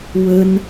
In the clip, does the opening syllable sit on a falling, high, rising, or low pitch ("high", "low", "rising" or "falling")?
high